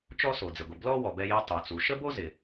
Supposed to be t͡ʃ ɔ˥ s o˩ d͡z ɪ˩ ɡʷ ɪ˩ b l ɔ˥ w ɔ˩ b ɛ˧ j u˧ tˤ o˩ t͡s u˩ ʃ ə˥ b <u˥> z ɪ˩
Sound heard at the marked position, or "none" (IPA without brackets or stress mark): o˥